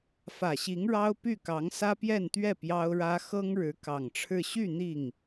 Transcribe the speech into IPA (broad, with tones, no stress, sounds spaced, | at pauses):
f ä˨˩ ɕ i˧˥ ŋ ɻ ɑ˥ ʊ̯ p y˥˩ k ɑ˧˥ ŋ s ä˥ p j ɛ˥˧ n t̪ ɥ ɛ˥˩ p j ɑ˥ ʊ̯ ɻ ä˥ x ɤ˥ ŋ ɻ ɻ̩˧˥ k ɑ˨˩ ŋ ʈ͡ʂʰ ɻ̩˥˧ ɕ y˥˧ n̪ i˥˩ ŋ